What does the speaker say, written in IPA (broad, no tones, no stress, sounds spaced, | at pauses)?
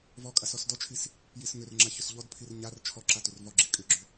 v ɔ kʼ a s ɔ s d ɔ t͡ʃʰ i s | j i s ŋ ʏ r ŋ͡ǁ a ç ʏ s ʎ ɔ d pʰ i r ɲ a r t͡ʃʰ ɔ ǁ a t ʏ r v ɔ ɡ͡ǁ i kʼ ʏ ɡ͡ǁ ʏ